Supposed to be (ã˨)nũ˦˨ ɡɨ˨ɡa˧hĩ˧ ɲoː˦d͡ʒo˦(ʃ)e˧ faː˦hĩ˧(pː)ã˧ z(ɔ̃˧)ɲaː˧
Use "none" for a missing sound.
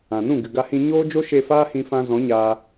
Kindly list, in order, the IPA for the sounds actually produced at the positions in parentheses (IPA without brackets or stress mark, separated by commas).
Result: ã˨, ʃ, f, ɔ̃˨˦